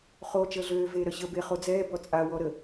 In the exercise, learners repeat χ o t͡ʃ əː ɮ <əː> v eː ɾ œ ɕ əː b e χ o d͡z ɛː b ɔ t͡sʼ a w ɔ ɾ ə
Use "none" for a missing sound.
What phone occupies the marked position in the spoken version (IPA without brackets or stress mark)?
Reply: øː